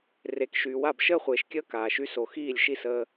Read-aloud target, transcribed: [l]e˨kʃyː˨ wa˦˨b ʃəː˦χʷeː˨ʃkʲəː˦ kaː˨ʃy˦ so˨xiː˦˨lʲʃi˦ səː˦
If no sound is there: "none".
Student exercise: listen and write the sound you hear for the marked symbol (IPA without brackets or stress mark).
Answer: r